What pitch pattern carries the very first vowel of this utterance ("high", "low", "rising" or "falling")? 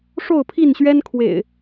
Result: falling